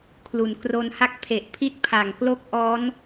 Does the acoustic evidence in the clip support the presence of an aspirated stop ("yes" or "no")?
yes